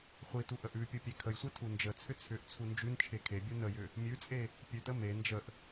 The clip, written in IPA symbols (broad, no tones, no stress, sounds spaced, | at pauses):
χʷ i t u ʔ ə ʔ ʉ pʲ u pʲ e kʰ ə j sʷ ɛ tʰ u n d͡ʒ ə t͡sʰ ʏ t͡sʰ ʏ ʔ t͡sʰ u n d͡ʒ ʉ n t͡ʃʰ e kʰ e bʲ u n ə j ʏ | mʲ ʉ t͡sʼ e | pʲ ʉ t ə m e n d͡ʒ ə ʔ